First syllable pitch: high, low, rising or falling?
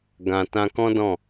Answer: low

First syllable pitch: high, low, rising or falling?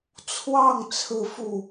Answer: falling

